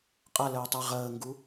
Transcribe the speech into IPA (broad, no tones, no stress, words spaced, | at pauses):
qʼʌləːtˤɛ ʁəːŋɡu